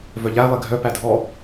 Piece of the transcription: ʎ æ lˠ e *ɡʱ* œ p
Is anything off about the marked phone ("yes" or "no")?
no